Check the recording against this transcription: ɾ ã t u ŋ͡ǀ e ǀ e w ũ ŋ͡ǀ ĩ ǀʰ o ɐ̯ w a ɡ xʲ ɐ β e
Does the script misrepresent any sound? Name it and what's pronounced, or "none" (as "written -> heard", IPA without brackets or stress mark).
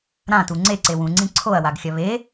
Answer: none